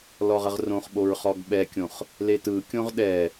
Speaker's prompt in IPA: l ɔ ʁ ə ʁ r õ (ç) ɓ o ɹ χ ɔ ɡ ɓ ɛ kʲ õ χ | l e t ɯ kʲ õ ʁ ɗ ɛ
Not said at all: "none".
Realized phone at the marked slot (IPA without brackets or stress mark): χ